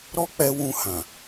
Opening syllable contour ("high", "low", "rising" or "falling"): high